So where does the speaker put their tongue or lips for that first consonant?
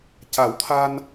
palate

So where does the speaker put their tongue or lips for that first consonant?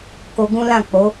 velum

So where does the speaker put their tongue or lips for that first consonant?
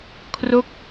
velum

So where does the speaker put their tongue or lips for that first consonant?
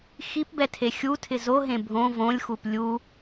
velum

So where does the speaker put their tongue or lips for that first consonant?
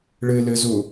retroflex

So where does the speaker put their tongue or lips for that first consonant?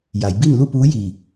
palate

